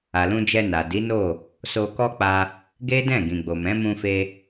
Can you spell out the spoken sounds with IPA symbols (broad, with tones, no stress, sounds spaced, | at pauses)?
a˨ l ũ˧ d͡ʒ ɛ˧ n a˨ d i˨˦ n o˦˨ | s o˧ k ɔ˦ k͡p a˧ | ɡ e˦ d ɛ̃˦˨ ɡ ĩ˨ ɡ͡b o˨ m ɛ̃˨˦ m ũ˧ f e˧